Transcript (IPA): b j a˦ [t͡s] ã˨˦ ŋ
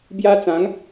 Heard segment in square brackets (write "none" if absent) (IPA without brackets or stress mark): t͡s